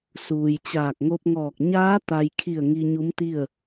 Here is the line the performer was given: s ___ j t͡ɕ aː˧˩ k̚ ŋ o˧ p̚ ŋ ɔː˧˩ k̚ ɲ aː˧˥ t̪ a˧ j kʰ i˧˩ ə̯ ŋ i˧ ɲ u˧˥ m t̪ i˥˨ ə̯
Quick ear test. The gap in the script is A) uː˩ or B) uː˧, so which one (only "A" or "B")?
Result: A